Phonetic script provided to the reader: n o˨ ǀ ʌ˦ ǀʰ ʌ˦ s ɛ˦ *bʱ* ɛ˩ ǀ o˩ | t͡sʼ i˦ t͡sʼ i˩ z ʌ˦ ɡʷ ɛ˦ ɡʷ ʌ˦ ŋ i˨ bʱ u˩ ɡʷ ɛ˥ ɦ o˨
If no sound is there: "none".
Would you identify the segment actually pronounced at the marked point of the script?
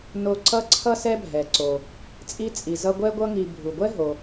bʱ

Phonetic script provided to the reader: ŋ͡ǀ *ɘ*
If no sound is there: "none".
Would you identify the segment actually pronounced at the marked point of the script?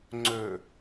ø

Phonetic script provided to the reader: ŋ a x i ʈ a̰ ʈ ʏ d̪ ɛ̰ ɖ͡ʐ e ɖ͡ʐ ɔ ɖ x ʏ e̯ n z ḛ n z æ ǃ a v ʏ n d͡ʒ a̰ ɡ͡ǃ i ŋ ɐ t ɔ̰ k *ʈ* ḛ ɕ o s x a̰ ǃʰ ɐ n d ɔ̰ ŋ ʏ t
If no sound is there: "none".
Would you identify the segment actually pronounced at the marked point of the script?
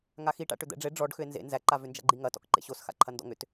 ǃ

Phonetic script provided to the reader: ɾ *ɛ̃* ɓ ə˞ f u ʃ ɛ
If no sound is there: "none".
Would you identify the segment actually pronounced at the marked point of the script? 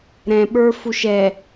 ɛ̃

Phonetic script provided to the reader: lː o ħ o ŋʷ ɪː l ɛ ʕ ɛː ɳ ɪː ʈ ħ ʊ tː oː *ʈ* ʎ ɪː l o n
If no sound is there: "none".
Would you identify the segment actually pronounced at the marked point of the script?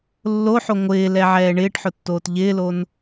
t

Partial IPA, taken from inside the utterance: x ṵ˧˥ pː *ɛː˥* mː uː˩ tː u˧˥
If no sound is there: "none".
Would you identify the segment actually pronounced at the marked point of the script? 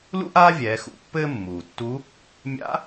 ɘː˥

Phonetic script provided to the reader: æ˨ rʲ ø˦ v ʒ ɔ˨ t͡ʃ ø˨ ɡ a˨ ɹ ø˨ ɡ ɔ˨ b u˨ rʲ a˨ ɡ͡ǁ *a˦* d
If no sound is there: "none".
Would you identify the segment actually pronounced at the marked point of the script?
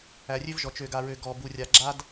a˦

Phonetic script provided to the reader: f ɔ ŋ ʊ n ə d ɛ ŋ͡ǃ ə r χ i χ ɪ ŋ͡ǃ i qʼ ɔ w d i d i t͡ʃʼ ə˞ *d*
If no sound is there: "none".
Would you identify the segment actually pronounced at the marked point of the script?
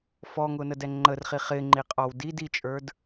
d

